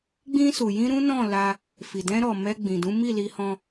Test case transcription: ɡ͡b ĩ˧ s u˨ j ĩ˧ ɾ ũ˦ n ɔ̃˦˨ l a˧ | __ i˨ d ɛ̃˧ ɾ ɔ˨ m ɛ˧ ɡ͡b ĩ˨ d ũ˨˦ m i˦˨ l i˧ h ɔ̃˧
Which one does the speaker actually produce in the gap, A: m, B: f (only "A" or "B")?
B